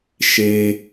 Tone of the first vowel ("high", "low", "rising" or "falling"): low